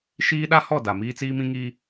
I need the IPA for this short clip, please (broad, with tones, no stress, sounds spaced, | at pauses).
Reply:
ʃ iː˦ ɗ a˦ h ɔ˦˨ d a˨ m iː˦ t͡s iː˦ m ĩ˦ ŋ iː˦